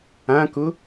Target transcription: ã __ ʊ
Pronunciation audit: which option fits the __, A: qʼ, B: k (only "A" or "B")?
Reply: B